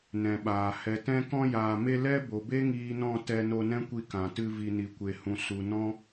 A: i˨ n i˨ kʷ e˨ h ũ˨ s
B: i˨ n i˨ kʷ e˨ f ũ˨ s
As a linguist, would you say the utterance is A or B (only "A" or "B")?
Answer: A